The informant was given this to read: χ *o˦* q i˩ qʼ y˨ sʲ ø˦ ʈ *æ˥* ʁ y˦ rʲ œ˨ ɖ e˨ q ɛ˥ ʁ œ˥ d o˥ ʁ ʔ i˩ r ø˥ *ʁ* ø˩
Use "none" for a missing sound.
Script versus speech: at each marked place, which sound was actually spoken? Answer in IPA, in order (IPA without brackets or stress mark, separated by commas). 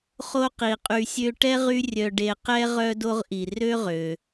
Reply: o˦, ɛ˥, ʁ